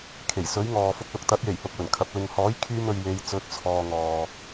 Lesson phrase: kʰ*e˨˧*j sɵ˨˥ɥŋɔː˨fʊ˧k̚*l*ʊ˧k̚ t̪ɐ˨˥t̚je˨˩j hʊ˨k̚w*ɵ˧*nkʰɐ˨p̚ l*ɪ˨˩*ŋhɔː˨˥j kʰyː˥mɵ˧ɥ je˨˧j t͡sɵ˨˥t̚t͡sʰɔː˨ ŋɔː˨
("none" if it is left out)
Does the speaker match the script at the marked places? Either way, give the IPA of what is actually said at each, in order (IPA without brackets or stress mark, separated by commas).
e˨˩, l, ɵ˨˩, ɪ˨